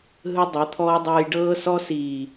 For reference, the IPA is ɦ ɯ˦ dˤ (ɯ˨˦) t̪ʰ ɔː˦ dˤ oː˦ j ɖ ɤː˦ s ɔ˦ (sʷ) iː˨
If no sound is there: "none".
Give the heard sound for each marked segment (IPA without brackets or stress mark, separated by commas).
ɯ˨˦, s